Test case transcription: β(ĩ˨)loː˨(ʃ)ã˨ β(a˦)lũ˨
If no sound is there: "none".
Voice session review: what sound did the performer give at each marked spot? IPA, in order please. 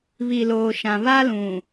i˨, ʃ, a˦

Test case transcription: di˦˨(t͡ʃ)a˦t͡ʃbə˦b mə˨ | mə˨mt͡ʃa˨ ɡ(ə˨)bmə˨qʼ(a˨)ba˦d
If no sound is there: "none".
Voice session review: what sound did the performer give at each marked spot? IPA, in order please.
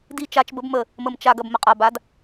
t͡ʃ, ɐ˨, a˨

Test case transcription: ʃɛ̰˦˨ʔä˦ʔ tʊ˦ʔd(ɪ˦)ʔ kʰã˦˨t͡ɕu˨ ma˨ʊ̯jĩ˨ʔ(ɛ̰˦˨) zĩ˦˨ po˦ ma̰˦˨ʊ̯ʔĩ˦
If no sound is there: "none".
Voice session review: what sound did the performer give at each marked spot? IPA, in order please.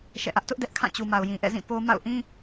ɛ˦, ɛ̰˦˨

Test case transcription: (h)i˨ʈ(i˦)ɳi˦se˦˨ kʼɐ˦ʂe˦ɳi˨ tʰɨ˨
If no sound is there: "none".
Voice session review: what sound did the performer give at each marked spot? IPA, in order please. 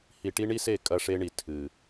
h, i˦

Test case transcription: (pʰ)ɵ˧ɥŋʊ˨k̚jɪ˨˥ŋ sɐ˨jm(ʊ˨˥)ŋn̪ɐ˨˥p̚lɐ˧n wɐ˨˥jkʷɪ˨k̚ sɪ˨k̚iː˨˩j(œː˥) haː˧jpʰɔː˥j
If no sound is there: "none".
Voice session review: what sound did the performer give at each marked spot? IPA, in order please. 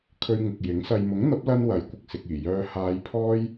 kʰ, ʊ˨˥, œː˧

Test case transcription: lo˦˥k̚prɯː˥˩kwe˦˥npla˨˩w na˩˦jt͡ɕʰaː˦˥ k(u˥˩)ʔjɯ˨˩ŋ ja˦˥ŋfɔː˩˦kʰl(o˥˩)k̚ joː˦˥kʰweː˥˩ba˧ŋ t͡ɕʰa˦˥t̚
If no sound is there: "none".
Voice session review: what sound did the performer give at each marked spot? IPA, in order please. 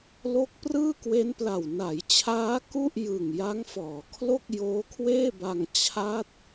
u˥˩, o˥˩

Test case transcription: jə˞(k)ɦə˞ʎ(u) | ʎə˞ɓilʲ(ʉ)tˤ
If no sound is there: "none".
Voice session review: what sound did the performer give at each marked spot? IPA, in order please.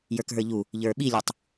k, u, u

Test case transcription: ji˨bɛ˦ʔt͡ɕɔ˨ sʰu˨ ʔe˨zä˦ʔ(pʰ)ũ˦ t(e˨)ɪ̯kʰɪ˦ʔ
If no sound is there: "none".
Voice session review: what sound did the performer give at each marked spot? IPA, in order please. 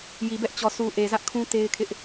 kʰ, e˦

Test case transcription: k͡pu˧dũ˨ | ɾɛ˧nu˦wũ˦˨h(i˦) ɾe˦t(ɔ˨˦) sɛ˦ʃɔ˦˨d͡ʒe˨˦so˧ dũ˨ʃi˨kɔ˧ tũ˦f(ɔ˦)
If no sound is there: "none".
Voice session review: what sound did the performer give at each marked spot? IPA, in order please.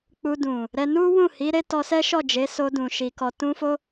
i˨˦, ɔ˧, o˦

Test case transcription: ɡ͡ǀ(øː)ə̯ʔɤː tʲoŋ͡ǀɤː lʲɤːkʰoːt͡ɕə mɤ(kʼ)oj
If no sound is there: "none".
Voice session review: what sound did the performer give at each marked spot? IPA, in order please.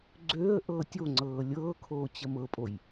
øː, pʼ

